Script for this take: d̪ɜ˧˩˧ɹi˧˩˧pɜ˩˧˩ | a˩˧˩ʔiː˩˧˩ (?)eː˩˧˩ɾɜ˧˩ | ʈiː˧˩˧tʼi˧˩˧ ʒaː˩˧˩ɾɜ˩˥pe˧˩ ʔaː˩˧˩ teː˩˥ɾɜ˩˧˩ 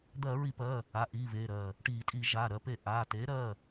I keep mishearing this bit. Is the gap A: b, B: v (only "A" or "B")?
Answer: B